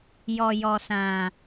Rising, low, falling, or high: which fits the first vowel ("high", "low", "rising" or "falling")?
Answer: low